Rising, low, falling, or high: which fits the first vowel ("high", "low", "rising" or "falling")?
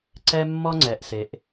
high